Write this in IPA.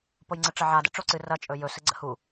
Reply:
pojŋ͡ǀəʈ͡ʂɐʕa dɛ̰ʈ͡ʂoǀɨ rɐ t͡ʃʼɵjɵ sɨɡ͡ǀə̰hu

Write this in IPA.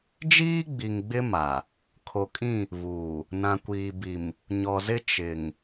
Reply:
d͡ʒiː˦ɡ͡bi˨ŋɡ͡bɪ˦ ma˨ | kʰo˨kʼĩ˦˨ | βuː˨ | nã˨kʷiː˨bi˨m | ɲɔ˨zɪ˦ t͡ʃɪ˨ŋ

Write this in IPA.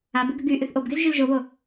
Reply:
abɪ ɡəɡyʔyθ ʔobɡyz ʒylʒoβo

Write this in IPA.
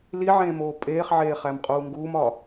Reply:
liʕẽːmoː pʼeːχʕeːχæmqʼuː ŋɡuːmɒ

